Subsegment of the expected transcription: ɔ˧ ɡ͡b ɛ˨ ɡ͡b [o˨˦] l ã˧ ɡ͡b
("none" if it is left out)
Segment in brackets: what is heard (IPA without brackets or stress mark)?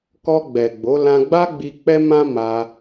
o˨˦